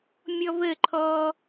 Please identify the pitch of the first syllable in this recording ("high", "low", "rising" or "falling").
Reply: high